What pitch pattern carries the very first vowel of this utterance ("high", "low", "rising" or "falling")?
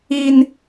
high